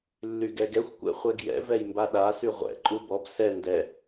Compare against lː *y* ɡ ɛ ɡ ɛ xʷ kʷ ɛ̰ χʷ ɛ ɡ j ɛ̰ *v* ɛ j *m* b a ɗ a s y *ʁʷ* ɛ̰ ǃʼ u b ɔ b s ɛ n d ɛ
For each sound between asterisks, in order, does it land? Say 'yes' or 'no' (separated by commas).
yes, yes, yes, yes